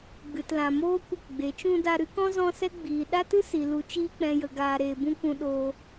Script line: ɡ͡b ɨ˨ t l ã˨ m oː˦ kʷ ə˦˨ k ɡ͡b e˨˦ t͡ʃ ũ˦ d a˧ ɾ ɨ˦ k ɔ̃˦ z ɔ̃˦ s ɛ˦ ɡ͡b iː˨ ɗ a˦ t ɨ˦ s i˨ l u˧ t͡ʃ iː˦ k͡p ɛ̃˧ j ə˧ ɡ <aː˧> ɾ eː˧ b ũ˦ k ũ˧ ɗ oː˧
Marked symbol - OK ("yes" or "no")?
yes